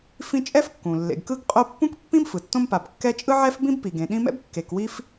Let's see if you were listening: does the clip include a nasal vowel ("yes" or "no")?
yes